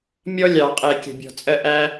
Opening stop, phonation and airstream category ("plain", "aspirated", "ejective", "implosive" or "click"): ejective